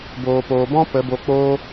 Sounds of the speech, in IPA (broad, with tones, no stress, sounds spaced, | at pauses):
b oː˨ p oː˨ b ɔ̃˦ p ə˨˦ b o˧ k͡p oː˦